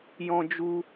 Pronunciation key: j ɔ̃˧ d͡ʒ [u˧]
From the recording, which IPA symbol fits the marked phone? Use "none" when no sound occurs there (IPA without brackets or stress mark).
u˧